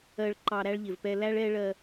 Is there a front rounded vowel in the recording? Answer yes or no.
no